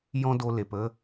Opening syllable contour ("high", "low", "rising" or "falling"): high